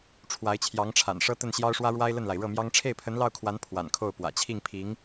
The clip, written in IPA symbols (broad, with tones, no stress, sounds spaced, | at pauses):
ʈ͡ʂʰ w a˧˥ ɪ̯ t͡ɕʰ j ɑ˧˥ ŋ ʈ͡ʂʰ a̰˨˩ n ʂ ɤ˥ t̪ ə˥˩ n ɕ j ɑ˥ ʊ̯ ʂ w ä˥ ɻ w a˥ ɪ̯ l ə˥˩ n l a˩ ɪ̯ ɻ ɤ˥˩ m j ɑ˥ ŋ ʈ͡ʂʰ e˥˩ ɪ̯ pʰ ə˧˥ n l ɑ˥˩ ʊ̯ kʰ w a˧˥ n pʰ w a̰˨˩ n kʰ o˥˩ ʊ̯ p w ä̰˨˩ t͡ɕʰ i˥˩ ŋ pʰ i˧˥ ŋ